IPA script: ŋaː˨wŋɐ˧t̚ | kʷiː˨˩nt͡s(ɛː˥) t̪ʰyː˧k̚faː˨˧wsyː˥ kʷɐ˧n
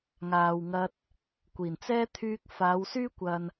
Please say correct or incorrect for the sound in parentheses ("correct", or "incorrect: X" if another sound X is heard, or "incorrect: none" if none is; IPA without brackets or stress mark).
correct